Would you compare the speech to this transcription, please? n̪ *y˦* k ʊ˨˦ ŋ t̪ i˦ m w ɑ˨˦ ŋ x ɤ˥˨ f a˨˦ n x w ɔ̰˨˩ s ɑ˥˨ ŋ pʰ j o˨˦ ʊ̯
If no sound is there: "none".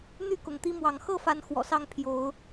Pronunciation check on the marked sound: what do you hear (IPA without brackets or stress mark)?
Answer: y˥˨